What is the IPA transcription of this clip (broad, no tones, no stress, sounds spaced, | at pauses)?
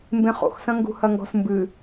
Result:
m b ẽ χ o̰ x s ɐ̃ ŋ ɡ ṳ h ɐ ŋ ɡ ɔ̤ s m b ɨ